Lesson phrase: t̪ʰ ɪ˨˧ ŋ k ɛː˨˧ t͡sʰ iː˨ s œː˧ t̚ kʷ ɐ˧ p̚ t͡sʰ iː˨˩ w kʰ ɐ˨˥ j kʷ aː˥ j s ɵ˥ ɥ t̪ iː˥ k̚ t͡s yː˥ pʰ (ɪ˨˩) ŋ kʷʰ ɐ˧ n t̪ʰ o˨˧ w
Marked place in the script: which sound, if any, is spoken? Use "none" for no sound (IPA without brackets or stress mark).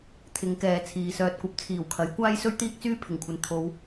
ɪ˨˩